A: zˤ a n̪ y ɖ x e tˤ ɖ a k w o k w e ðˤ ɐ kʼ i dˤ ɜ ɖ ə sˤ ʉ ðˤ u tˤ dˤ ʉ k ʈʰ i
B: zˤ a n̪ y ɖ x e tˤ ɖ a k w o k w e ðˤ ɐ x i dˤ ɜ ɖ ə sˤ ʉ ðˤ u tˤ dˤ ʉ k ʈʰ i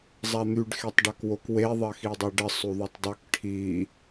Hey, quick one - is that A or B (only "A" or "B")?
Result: B